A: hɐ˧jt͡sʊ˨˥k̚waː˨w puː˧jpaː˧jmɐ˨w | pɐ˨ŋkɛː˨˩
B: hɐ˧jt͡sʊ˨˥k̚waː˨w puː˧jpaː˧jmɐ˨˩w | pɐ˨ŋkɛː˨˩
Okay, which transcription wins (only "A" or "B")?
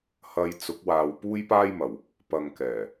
B